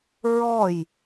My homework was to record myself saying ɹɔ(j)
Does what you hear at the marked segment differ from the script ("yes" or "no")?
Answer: no